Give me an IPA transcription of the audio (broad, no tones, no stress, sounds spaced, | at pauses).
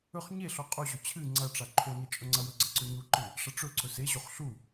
ɵ χ ɲ e ɬ o qʼ u ʑ ɵ t͡ɕʰ ɨ ŋ͡ǀ ɐ ʈ͡ʂ a ǃʰ o n e t͡ʃʼ ɵ ŋ͡ǀ ɐ w ɵ ɡ͡ǀ ɐ ǀ ɵ ɲ u ǃ ɨ | ʂ ɐ ʈ͡ʂ ɵ ǀ ɵ s e ʑ o χ ɬ u